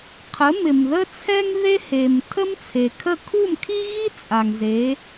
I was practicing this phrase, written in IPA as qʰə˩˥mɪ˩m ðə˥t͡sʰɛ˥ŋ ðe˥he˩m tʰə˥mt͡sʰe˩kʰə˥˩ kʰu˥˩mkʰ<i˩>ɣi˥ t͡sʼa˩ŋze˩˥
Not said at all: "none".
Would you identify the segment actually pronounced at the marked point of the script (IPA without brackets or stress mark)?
i˥